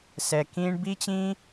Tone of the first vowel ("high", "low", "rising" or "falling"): low